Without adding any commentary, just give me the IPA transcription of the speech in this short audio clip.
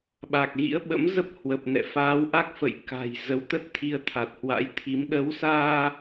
ɓ a˨˩ k̚ ɣ ḭ˧˥ ə̯ ɓ ə̰˧˥ m z ə˦˥ p̚ h w ə˨˩ p̚ n ɛ̰˧˨ f aː˨˦ w ʔ a˦˥ k̚ f ə̰˧˨ j k a̤˨˩ j z ə˨˦ w t̪ ə˦˥ t̚ t̪ʰ i˧ ə̯ t̪ʰ a˨˩ t̚ h w a̰˧˥ j t̪ʰ i˨˦ m ɗ ə˨˦ w s aː˧

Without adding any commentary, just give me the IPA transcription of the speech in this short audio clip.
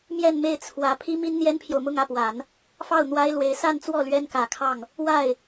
m j ɛ˥˧ n m e˥˩ ɪ̯ t͡sʰ w ä˧˥ pʰ i˥ m i˥ n n̪ j ɛ˥ n pʰ j o˨ ʊ̯ m ʊ˥˧ ŋ ä˥˩ p w a˨˩˦ n | f ɑ˥˩ ʊ̯ n̪ w a˥ ɪ̯ l w e˧˥ ɪ̯ s a˥˧ n t͡s w ɔ˥˩ l ɥ ɛ˥ n k ä˨˩ kʰ ɑ˥˩ ŋ | w a˥˩ ɪ̯

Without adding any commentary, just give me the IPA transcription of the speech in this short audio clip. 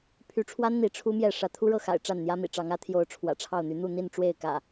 pʰ y˨˦ ʈ͡ʂʰ w a˦ n n̪ i˨˦ ʈ͡ʂʰ u˦ m j ɛ˥˨ ʂ ä˨˦ t̪ʰ u˦ ɻ ɤ˥˨ x a̰˨˩ ɪ̯ ʈ͡ʂ a˥˨ n n̪ j ä˦ m ḭ˨˩ ʈ͡ʂ ɑ˨˦ ŋ ä˨˦ t̪ʰ j o˨˦ ʊ̯ ʈ͡ʂʰ w ä̰˨˩ ʈ͡ʂʰ ɑ˥˨ ʊ̯ n̪ y˨˦ n̪ u˥˨ n̪ i˥˨ n ʈ͡ʂ w e˥˨ ɪ̯ k ä̰˨˩

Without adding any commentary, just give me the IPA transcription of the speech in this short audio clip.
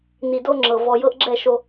n i˨ d o˦ ŋ͡ǁ ɤ˨ v ɔ˨ j ɤ˦ ʔ ɡ͡ǁ ɛ˦˨ ʃ o˦

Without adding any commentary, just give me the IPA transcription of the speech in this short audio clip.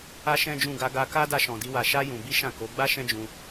a˦ ʃ ɛ̃˦ d͡ʒ ũ˦˨ ɡ a˧ ɡ a˧ k a˦ d a˦ ʃ ɔ̃˧ d i˦ w a˧ ʃ a˦ j ũ˧ b i˦ ʃ ã˦˨ k o˨˦ ɡ͡b a˦ ʃ ɛ̃˦ d͡ʒ ũ˧

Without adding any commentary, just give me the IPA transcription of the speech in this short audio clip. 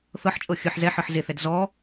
θ ɤ ħ t͡ʃʼ ɤ xʲ ɯ ħ z ɛ ħ ɤ ħ z e θ ɛ d z ɔ

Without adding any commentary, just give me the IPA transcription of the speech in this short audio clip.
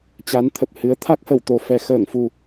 t͡ɕ a˨˦ n t̪ʰ ə˨˩ p̚ h ɨ˨˦ ə̯ t̪ʰ a˦˥ k̚ h ə˧˩ w t̪ o˨˩ f ɛ˨˩ x əː˧˩ ŋ f u˨˩

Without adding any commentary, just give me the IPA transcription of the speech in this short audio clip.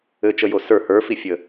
ɘ t͡ʃ ə j o s ə˞ h ə˞ f i fʲ ə

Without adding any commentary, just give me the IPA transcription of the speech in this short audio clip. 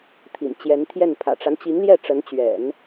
t̪ʰ ḭ˨˩ n t͡ɕ j ɛ˧˥ n t̪ʰ j ɛ˥˩ n pʰ ä̰˨˩ ʈ͡ʂ a˦ n t͡ɕ i˧˥ ŋ l j ɛ˥˩ ʈ͡ʂ ə˧˥ n t͡ɕ ɥ ɛ̰˨˩˦ n

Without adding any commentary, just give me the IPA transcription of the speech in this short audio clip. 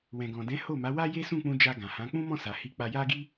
w ɛ̃˨ ɡ ɔ̃˨ d ɛ̃˨˦ h o˦˨ m a˨˦ w a˦ j e˦ s ũ˦˨ k͡p ũ˧ d͡ʒ a˧ ɡ ã˨ h ã˨˦ k͡p ũ˦ m ɔ̃˦˨ s a˨ h i˧ k͡p a˧ j a˦ ɡ i˦

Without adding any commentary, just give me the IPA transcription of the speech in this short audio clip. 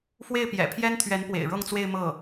f w e˥˩ ɪ̯ p j ɛ̰˨˩ pʰ j ɛ˥ n t̪ʰ ɥ ɛ˧˥ n p w ḛ˨˩ ɪ̯ ɻ ɤ˥˧ ŋ t͡s w e˥˧ ɪ̯ m ɤ˥˩

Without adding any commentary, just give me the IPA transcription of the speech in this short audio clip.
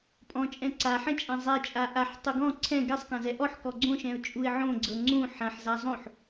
pʼ ɔ̃ t͡ʃʼ ɛ̃ ǀ a ħ ɛ̃ t͡ʃʼ ã zˤ ɛ t͡ʃʼ a ʔ a ħ tˤ u ɡ ɔ̃ ǀʰ ɛ̃ ɡ ɛ sˤ k ã z ɛ ʔ ɔ ħ k ɔ ɡ͡ǀ õ ʃ ɛ̃ ʊ̯ t͡ʃʼ u ɪ̯ ʕ õ ɡ͡ǀ ɤ ŋ͡ǀ ũ ħ ã ħ z a zˤ õ ħ

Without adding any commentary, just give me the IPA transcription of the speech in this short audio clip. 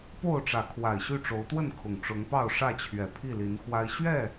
p o˥˨ ʊ̯ ʈ͡ʂ ä˨˦ kʰ w a˨˩ ɪ̯ ɕ y˥˨ ʈ͡ʂ o˨˦ ʊ̯ t̪ w ə˥˨ n kʰ ʊ˨˩ ŋ ʈ͡ʂ ʊ˨˦ ŋ p ɑ˥˨ ʊ̯ ʂ ä˥˨ t͡ɕʰ ɥ ɛ˨˩ pʰ i˥˨ l i˨˦ n x w a˦ ɪ̯ ɕ ɥ ɛ˥˨

